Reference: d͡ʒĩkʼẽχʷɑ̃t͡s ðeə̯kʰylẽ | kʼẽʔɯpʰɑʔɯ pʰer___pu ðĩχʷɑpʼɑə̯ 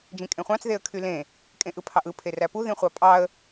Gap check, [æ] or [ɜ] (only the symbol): æ